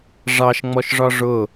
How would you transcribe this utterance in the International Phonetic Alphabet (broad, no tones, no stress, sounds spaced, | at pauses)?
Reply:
ʐ ɑ ʃ ŋ͡m ɔ ʃ ʐ ɒ ʐ ʊ